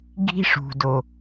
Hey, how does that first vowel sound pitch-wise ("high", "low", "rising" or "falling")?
high